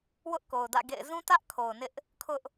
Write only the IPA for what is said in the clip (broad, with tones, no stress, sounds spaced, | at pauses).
w ʊ˦ ʔ k o˨ ʊ̯ d ä̰˦˨ ɡ ḛ˦˨ ɪ̯ z ũ˦ t ä˦ ʔ kʰ o˨ ʊ̯ n ɪ˦ ʔ | kʰ ʊ˦ ʔ